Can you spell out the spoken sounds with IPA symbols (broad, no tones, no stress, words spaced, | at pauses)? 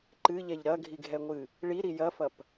ǃɨʎɛʎ ɾɐɡʱiɡʱɛŋʷɨ | ɭiɾi jɐfɐp